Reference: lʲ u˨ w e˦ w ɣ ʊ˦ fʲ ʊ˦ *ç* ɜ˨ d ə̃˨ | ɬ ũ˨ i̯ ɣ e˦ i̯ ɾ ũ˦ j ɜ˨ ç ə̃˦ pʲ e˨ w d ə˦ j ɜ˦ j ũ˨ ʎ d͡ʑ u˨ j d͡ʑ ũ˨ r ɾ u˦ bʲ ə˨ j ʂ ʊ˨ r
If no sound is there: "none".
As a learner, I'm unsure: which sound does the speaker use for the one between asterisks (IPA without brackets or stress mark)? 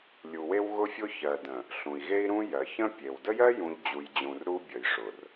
ç